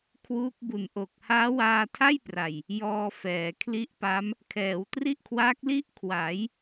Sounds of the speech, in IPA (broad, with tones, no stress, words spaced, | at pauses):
kʰwuː˦˥k̚bu˨˩nʔo˨˩k̚ haː˦˥waː˧tʰa˥˩jpra˨˩j | jɔː˧fɛː˩˦ kʰli˦˥ʔpa˦˥m | kʰɛː˩˦wtri˥˩ʔkʰwa˦˥k̚ li˥˩ʔkʰwa˩˦j